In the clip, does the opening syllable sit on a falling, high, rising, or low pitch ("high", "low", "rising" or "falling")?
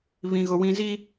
low